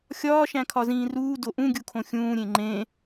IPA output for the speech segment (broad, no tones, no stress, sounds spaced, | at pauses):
xʲ ɒː ʃ æ̃ kʰ ɒ z ĩː r uː d o ʔ ũ ɡʲ u kʰ õ xʲ ũː ɾʲ ẽ ŋ͡ǃ ẽ